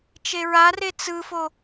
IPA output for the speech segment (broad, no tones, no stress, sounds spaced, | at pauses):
t͡ʃ e ɹ a r e t͡s ɯ f o